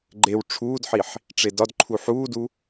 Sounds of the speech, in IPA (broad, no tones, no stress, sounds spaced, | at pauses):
ɡ͡ǃ e w ʈ͡ʂʰ uː d ħ i ħ | ʈ͡ʂ e d ɒ d ǃʰ u ħ uː d u